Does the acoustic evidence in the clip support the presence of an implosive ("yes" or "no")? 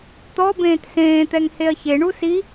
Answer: no